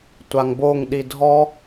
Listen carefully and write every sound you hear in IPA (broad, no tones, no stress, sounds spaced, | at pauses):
tʷ a ŋ b o ŋ ɗ i dʱ ɔ